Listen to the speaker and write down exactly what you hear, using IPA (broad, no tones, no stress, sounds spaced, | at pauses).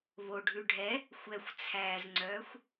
β o ɖʱ ʉ ɖʱ ɛ | xʷ ɛ xʷ t͡sʰ æː z ŋ͡ǀ œː xʷ